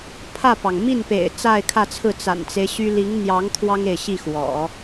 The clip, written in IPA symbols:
pʰä˥˩pɑ˩ŋ mi˥˩npḛ˨˩ɪ̯ t͡sa˥˧ɪ̯kʰä˥˧t͡sʰɹ̩˥˩ t͡sa̰˨˩nt͡se˦ɪ̯ ɕy˥ li˧˥ŋn̪jɑ˧˥ŋ t̪ʰwɑ˥ŋe˨ɪ̯ɕi˥˩ xwɔ̰˨˩˦

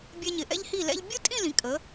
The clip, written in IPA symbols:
bʲɛ˧ɲɪ˩˧ ʔɛ̰˧ʎhi˧˩lɛ̰˧ʎ bʲʊ˥tʼĩ˥˧lĩ˩˧ kʼə˩˧

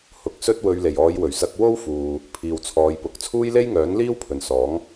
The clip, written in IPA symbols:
hʊ˨k̚sɵ˥t̚ wɵ˧ɥle˨˩j ɔː˨˧jwɵ˨˩ɥsɐ˧k̚ wo˥wfuː˨ | pʰiː˨wt͡sʰɔː˨˧jpʊ˨˥k̚ t͡sʰuː˥jle˥jŋœː˨˥nliː˥w pʰɵ˨nsɔː˨˥ŋ

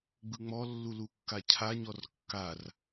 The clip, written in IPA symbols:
ɡ͡bɯŋ͡mɔlːu lukːacʰa ɲɔrkːar

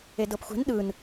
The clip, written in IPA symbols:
edɤpxʷɛ̤n ɗɯn

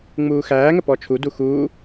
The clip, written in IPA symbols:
ŋ͡muːxæːŋə pɔt͡ʃʰudu xuː

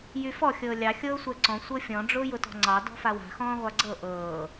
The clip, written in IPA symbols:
jyfɔ xʲɤːlʲɑ xʲɤːsʷɛǀɔ̃ sʷɤfʲɔ̃ ɖ͡ʐʊːjʊtɔ̤ŋ͡ǀɑ dɔ̤fawa̤ xɔ̃ːʁʷaɡ͡ǀɤ ʔɤː

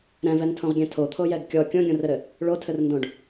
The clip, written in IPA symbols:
ɾɛ̃vɛntʰõʁɡʲɛ̃ tʰot̪ʰojɛɡ kʲɔ kʲõɡʲõrɘɾɘ | ɭotʰɘrndõɖ

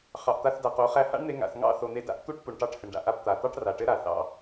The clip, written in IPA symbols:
χɑ˨ʔt̪a˧θda˨qo˨˦ χæ˧ha̰˦ɳn̪e˧ ŋa̰˨θŋɑ̰˦˨θo˨ n̪e˧da̰˦ʔ t̪u˦ʈpu˨ɳʈɑ˧ʈ hɘ˨ɳɖa̰˨ʔa˧pt̪a˨ t̪ɑ˦ʈra˨ʈɘ˦ ɾa˨θɑ̰˦˨

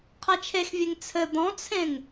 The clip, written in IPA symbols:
qʰɛt͡ʃʰexvʲeŋ t͡sʰɘ d̪ɔ̃t͡sʰẽŋ

